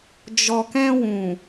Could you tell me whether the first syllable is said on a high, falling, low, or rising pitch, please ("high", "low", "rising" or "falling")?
low